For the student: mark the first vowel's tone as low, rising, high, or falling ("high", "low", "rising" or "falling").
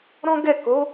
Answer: high